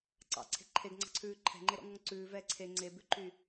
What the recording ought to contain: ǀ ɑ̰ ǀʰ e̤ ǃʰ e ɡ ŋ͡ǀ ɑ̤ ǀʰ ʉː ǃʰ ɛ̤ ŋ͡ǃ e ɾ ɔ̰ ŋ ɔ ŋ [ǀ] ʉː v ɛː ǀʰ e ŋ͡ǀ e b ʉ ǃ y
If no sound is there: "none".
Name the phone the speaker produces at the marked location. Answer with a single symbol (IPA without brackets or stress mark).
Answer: ǀ